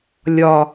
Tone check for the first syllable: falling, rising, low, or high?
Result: low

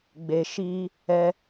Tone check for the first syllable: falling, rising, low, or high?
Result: low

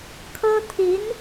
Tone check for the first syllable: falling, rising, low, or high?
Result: high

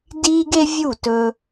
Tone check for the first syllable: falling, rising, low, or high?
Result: high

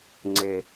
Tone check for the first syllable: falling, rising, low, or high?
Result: low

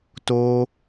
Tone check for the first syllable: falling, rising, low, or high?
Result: high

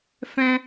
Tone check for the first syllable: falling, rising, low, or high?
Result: high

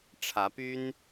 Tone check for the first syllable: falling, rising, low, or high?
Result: rising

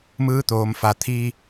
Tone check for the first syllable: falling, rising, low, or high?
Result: rising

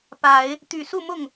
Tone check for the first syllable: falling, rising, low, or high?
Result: low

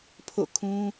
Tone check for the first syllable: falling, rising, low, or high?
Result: falling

